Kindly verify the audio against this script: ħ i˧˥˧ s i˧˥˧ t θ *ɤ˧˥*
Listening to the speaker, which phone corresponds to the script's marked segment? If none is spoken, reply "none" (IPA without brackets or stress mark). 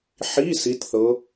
ɤ˧˥